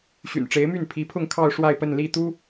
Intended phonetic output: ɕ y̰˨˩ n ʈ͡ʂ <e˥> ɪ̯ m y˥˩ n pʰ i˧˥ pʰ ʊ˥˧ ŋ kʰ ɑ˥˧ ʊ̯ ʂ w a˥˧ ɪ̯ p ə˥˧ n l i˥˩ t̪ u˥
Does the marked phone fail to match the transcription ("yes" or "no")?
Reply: yes